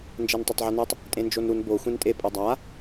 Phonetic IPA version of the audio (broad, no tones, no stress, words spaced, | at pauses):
nd͡ʒɛntˤotˤʕɛnɯtˤ | tʼẽnd͡ʒonɾun bo xʷẽntʼe pʼɯdˤa